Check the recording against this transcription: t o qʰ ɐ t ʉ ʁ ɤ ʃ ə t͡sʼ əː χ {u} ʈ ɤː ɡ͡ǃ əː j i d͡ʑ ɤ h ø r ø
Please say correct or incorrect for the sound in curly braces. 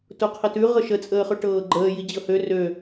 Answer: incorrect